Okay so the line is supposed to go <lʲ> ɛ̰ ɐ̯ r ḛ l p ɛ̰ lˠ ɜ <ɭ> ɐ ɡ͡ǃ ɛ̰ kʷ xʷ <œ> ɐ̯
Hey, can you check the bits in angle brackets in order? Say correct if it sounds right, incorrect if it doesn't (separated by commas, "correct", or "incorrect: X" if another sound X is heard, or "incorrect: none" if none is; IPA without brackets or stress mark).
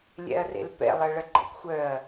correct, correct, correct